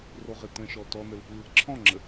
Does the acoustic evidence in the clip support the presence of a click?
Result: yes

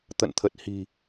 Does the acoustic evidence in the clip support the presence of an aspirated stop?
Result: yes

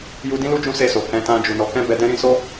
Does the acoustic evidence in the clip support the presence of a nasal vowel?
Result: yes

